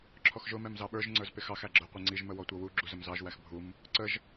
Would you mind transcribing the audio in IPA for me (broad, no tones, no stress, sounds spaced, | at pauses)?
ǁʰ ɔ x ʒ ʊ m ɛ m z ɑ ɓ ə˞ ʒ ŋ͡ǀ ə˞ z p ɪ x ɑ x æ ɡ͡ǁ ə˞ qʷ i ŋ͡ǀ i ʒ m ə w ɔ tʷ ʌ w u ɡ͡ǁ u z ə m z ɑ ʒ w æ x bʱ u m | ǀ ə ʒ